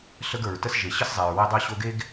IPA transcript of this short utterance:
ɬ ə˥ ɡ ə˞˩ ɹ t ə˥ s ʒ e˩ ɕ ə˥ s zˤ ɛ˩ ɹ w ɘ˥ dˤ o˥ ɕ o˥ ɡ e˥ ɡ

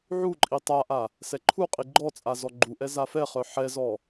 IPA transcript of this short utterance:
ʕ u ǃʼ i tˤ a ʔ a | s ɛ ǃʰ u qʼ i ɡ͡ǃ ɔ t͡sʼ a z ɔ ɡ͡ǃ u ʔ ɛ z a f ɛ χ œ ħ ɛ z ɔ

